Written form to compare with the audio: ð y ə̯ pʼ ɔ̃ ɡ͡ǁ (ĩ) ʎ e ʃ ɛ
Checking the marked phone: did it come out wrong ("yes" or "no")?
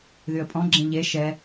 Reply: no